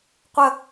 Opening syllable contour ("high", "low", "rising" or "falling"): falling